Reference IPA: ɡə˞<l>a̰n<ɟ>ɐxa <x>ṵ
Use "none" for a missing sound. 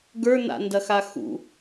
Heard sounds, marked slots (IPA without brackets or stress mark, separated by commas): n, d, x